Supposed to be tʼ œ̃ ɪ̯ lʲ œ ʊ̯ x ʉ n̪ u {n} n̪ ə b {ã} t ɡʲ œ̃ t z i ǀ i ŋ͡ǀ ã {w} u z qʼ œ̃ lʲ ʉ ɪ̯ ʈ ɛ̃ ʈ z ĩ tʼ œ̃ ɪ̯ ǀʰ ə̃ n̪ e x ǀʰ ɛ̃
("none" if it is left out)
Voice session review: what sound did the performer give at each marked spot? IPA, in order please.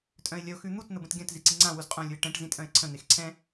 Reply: t, ə̃, w

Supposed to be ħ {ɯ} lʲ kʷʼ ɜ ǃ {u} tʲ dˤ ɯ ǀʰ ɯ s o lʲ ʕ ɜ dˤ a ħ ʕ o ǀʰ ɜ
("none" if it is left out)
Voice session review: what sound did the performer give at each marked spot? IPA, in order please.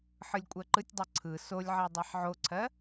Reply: ɯ, ɯ

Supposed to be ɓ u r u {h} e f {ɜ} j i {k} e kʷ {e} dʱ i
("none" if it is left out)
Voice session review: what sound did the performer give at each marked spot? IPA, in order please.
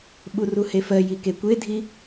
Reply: h, ɜ, k, e

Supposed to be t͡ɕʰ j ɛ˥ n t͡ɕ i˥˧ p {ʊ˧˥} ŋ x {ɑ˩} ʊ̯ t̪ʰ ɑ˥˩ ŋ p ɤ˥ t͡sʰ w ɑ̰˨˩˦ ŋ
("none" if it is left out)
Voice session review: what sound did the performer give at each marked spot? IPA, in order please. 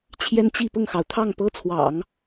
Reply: ʊ˥˩, ɑ˩

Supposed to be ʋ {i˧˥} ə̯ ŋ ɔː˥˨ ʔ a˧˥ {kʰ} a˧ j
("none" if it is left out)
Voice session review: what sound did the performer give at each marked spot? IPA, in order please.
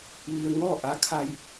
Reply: i˧, kʰ

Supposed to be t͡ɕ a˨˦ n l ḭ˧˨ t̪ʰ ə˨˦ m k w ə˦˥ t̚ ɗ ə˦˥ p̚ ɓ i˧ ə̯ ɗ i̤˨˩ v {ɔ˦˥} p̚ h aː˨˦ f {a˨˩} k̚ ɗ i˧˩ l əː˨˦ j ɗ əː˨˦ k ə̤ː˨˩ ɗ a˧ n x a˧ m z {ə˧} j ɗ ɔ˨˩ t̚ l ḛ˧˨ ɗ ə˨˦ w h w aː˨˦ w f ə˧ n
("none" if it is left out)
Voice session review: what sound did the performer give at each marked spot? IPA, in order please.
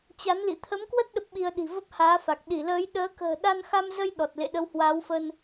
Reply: ə˦˥, a˨˩, ə˧

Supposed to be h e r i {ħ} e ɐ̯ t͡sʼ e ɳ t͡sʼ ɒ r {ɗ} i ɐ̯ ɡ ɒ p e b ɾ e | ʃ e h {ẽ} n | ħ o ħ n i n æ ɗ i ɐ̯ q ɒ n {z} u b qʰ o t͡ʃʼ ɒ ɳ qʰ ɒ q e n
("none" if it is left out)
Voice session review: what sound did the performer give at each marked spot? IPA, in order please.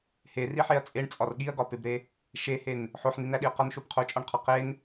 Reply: ħ, ɠ, e, ʃ

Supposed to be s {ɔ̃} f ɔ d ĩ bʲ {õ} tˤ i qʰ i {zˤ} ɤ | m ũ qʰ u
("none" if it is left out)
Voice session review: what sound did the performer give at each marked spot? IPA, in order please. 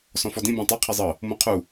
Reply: ɔ̃, ũ, zˤ

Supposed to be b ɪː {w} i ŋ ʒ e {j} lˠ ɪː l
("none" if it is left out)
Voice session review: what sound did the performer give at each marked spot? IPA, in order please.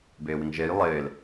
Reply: w, j

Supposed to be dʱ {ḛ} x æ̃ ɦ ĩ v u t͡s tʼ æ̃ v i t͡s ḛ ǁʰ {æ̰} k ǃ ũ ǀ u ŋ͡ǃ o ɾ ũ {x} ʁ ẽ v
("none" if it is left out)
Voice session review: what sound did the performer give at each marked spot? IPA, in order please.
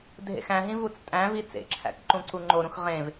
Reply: ḛ, æ̰, x

